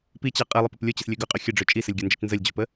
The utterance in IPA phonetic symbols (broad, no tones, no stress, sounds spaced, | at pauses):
p i t͡ɕ a qʼ ɘ lˠ ə p ɘ p lʲ o t͡ɕ ɘ s lʲ ø ɡ ɵ qʼ ɵ xʲ ɘ ɖ͡ʐ ø t͡ʃʼ i s ɘ lʲ ɡʲ ɘ n d͡ʒ ɘ t͡ʃ n z ə lʲ d͡ʑ o p ə